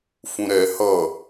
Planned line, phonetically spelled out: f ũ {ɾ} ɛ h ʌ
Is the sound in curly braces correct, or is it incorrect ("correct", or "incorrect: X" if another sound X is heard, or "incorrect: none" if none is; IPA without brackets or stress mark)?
correct